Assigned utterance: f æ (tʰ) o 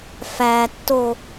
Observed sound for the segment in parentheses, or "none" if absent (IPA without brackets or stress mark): tː